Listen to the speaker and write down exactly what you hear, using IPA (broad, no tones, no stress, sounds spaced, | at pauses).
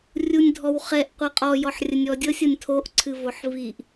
rʲ u nʲ dʱ ɔ w χ ɛ ʔ qʷ ɤ qʼ ɔ j ɔ ħ rʲ ə nʲ ɔ dʲ ɤ sʲ ɤ nʲ tʰ o ʔ ǀʰ ɨ v o ħ v i ʔ